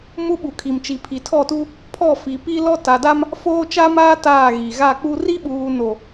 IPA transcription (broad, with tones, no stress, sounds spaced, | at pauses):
m u˦ ɓ u˨ kʰ i˨ m t͡ʃ i˨ pʰ i˨ tʰ ɔ˦˨ t u˦ | pʰ ɔ˦˨ f i˨ p i˦ l ɔ˦ t a˨ d a˦ m | f oː˦ t͡ʃ a˦ m aː˦ t aː˦˨ ɣ i˨ ɣ a˦˨ k͡p u˦ r i˦ ɓ uː˨ n o˨